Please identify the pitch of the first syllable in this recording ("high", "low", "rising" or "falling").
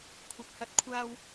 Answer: low